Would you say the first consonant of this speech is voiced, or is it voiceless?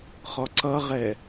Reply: voiceless